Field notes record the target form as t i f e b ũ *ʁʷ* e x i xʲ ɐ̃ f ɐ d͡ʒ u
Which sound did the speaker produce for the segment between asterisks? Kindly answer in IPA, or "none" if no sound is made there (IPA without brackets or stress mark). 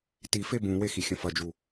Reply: w